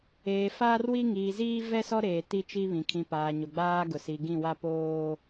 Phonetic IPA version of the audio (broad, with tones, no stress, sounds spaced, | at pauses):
eː˨ f aː˦ r w i˦ ŋ iː˨ z iː˦ v ɛ˦ s ɔ˦ ɾ eː˨ t i˦ t͡ʃ i˦ β ĩ˨ kʰ ĩ˨ p aː˨ ɲ o˨ ɡ͡b aː˦ ɡ ʊ˨ s i˨ ɡ ĩ˦˨ w a˦ p oː˦